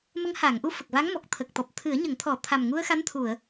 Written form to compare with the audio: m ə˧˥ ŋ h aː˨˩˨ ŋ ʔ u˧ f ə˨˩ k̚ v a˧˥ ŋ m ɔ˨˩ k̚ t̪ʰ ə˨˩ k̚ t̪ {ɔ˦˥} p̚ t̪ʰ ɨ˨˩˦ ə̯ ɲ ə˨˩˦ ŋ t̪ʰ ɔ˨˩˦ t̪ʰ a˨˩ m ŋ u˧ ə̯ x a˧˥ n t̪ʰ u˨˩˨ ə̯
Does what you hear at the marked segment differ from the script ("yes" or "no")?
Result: yes